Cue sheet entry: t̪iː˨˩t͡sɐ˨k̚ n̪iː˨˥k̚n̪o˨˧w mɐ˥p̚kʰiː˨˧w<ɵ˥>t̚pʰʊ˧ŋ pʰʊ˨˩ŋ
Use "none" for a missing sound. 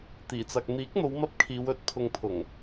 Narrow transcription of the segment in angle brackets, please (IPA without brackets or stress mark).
ɵ˧